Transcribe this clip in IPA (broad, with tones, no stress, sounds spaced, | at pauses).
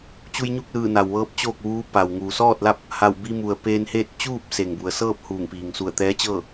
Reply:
t͡ɕ u˧ j ɲ u˥˨ k̚ l ɯː˧˩ n a˩ w ʋ ɤː˧˥ p̚ t͡ɕ oː˥˨ k̚ ʋ uː˧˥ p a˩ w ŋ uː˩ s ɔː˥˨ t̚ l a˥˨ p̚ | h a˧˩ w b i˧ m u˩ ə̯ p eː˧ n h eː˥˨ t̚ t͡ɕ uː˥˨ p̚ s e˩ ŋ b u˩ ə̯ s ɤː˥˨ p̚ h uː˧˩ ŋ p iː˩ ŋ s u˧˩ ə̯ t̪ ɛː˧˥ t͡ɕ ɤː˥˨